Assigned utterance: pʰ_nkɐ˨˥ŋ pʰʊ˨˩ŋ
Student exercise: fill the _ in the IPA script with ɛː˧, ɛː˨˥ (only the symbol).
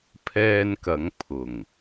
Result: ɛː˧